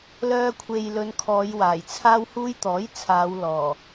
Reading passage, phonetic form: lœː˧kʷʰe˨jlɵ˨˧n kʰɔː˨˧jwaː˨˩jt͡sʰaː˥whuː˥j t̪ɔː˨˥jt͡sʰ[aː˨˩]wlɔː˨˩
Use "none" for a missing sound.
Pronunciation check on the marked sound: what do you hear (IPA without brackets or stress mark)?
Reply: aː˨˧